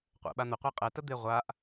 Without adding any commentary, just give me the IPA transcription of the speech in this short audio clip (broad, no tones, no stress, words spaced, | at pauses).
qʷɛ̰ɓan̪əqʷe qʼɛtəd̪e ʁʷaʔ